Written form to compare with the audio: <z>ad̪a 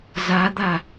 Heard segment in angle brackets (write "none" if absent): z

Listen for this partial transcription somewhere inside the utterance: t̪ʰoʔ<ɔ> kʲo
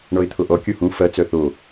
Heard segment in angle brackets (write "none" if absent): ɔ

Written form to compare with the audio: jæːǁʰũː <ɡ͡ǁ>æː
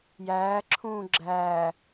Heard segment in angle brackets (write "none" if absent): ɡ͡ǁ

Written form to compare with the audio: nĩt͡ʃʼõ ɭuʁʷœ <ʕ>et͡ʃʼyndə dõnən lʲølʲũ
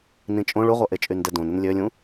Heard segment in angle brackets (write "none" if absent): ʔ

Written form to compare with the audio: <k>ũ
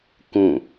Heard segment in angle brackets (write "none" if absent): k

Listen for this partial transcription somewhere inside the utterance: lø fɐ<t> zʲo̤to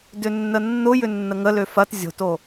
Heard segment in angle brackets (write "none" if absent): t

